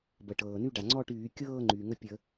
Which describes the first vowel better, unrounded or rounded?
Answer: unrounded